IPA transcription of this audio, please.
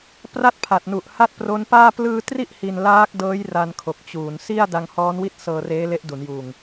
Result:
p r a˥˩ t̚ pʰ a˨˩ t̚ n u˨˩ ʔ h a˥˩ t̚ p r o˦˥ n p aː˥˩ p l ɯː˧ t r i˥˩ ʔ h i˧ n l aː˦˥ k̚ d ɤː˦˥ j r a˧ n kʰ o˨˩ k̚ t͡ɕ uː˩˦ n s i˥˩ a̯ d a˧ ŋ h ɔː˦˥ n w i˥˩ t̚ s ɤː˧ r eː˦˥ l e˦˥ ʔ d u˩˦ n j uː˨˩ ŋ

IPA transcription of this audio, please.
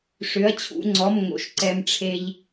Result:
ʂ ʏ˩˧˩ ɐ̯ t͡ɕʰ ṵ˩˧˩ ŋ͡ǀ ɔ˩˧˩ m ŋ o̰˩ ʃ ǀ ɛ˩ m ʈ͡ʂʰ e˩ ʎ

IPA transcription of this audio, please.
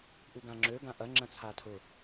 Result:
ʔ u ɡ ã ŋ͡ǁ ø ɡ ã ʔ ɐ ŋ͡ǁ ɐ̃ t͡sʰ a tʰ ʊ

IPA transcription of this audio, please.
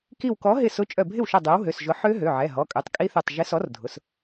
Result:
k i˧˩ w k ɔ˨˥ ɦ ɪ˧˩ s ʊ˨˥ t͡ʃʼ œ˧˩ bʱ ɪ˥˩ w ʃ œ˧˩ dˤ ø˨˥ w ɦ ø˩˧˩ s ʒ ʊ˨˥ ħ ø˦˥ ɦ ø˩˧˩ ʕ ɛ˩˧˩ ɦ ɔ˩˧˩ kʼ ø˩˧˩ tˤ kʼ i˦˥ θ ø˧˩ tˤ ʒ ɪ˨˥ s ɔ˨˥ r dʱ ʊ˩˧˩ s

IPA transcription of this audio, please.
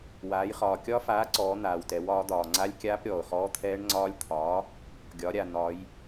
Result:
w aː˩˧ j χ ɒː˩ kʲ ɒ˦˥ f aː˨˥ ǀ ɔː˩˧ n̪ aː˩ w t ɛ˩˧ w ɒː˩˧ d̪ ɒː˩ ŋ͡ǀ a˦˥ lʲ kʲ aː˦˥ p ɾʲ ɔː˩ ʊ̯ χ ɔː˦˥ t̪ʰ ɛː˦˥ ɳ ŋ͡ǀ ɒː˦˥ lʲ t̪ʰ ɒː˨˥ | ɡʲ ɒ˩˧ ɾʲ a˩ n̪ ɒ˩˧ j

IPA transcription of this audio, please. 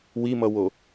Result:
w i m ʌ w o

